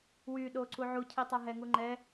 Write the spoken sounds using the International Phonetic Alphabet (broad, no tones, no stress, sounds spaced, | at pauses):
w y ɗ o ǀ u ʕ u cʰ i tˤ a ɦ ɛ ŋ u ŋ͡ǃ ɛ